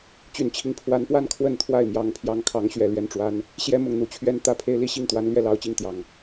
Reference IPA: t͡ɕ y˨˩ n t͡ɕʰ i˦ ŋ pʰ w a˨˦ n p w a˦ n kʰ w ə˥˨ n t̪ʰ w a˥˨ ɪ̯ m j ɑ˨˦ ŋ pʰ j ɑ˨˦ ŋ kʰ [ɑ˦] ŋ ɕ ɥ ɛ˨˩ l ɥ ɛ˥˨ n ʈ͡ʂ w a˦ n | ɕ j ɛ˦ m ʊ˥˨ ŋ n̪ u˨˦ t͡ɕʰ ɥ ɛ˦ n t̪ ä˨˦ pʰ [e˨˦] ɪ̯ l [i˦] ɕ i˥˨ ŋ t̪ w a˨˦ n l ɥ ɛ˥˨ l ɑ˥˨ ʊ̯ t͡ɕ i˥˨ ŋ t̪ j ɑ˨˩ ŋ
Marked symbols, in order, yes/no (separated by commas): no, no, yes